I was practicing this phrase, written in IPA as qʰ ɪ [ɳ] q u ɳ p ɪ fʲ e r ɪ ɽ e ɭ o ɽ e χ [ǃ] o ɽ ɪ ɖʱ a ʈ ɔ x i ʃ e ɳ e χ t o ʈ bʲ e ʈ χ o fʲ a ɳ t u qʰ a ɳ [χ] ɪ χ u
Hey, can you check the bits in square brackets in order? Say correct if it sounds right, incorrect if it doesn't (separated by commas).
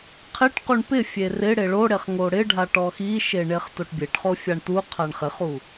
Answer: incorrect, incorrect, correct